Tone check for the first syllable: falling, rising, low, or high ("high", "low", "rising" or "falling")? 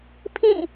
falling